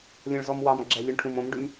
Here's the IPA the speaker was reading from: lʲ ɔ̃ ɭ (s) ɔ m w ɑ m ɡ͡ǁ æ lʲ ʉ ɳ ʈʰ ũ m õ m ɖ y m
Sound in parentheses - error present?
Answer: yes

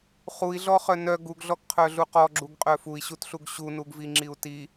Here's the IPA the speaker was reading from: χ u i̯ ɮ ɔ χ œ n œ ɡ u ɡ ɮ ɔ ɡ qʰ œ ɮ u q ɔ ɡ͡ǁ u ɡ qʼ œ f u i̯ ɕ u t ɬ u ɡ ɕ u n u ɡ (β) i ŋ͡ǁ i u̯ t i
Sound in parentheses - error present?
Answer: yes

